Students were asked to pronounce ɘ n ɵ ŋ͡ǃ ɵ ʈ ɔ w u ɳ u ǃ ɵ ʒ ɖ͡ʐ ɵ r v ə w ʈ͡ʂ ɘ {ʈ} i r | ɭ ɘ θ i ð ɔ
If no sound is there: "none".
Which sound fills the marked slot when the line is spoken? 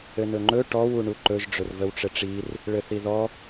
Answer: ʈ͡ʂ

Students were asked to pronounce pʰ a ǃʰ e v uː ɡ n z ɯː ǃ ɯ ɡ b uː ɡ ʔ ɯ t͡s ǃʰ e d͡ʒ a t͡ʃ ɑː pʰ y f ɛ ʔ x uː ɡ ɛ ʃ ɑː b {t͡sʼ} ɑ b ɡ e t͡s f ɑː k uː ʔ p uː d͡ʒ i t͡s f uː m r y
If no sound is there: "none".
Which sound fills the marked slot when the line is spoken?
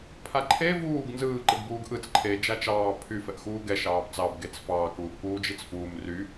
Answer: t͡s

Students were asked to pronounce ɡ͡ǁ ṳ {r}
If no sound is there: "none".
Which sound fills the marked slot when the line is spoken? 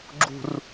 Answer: r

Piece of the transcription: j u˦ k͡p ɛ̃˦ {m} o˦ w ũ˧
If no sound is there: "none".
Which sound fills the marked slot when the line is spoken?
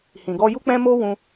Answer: m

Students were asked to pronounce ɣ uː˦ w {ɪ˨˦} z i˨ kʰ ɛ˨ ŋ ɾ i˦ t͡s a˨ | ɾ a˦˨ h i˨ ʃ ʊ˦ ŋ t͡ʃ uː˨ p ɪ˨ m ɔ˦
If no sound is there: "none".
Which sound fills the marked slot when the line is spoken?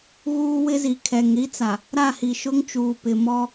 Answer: ɪ˦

